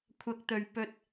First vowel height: low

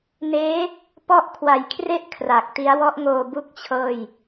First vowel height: mid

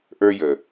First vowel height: mid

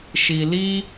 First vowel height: high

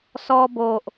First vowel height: mid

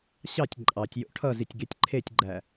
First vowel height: low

